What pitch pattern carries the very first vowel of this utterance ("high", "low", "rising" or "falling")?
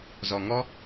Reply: low